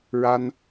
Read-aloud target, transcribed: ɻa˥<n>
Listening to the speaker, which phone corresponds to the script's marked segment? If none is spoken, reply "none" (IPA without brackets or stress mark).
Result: n